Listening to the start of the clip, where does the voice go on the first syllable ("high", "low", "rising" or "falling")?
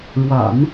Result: low